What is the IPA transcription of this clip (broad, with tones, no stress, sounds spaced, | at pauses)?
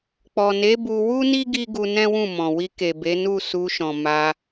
k͡p ɔ˨ n e˨˦ b u˧ w u˦ n i˦ ɡ i˦ ɡ u˧ n ɛ̃˦ w ũ˦˨ m ɔ̃˨ w i˧ k e˨ b e˨˦ n u˦˨ s u˧ ʃ ɔ̃˨ m a˧